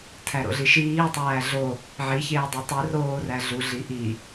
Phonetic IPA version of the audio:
tʰ æ ɾ o̰ ɮ i ʃ iː tˤ æː ɮ o | ʕ i ç eː dˤ i tˤ i r oː r æ ɮ u ɮ i ʔ i

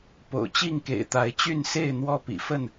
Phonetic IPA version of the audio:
p o̰˨˩ ʊ̯ t͡ɕ i˥˨ ŋ k ḛ˨˩ ɪ̯ t̪ a˨˦ ɪ̯ t͡ɕ y˥˨ n s e˥˨ ɪ̯ n̪ w ɔ˦ p ḭ˨˩ f ə˥˨ n

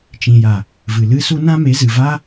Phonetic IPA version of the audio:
t͡ʃ ĩ˨ j a˨ | v ɨ˨ l ɨ˦ s u˦ n ã˦ m e˨˦ z ɨ˨ v a˦

